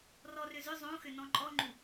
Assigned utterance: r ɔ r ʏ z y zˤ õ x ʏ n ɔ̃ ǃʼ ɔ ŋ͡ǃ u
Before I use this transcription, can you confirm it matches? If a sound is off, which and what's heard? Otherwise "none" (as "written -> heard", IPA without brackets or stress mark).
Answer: y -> ʏ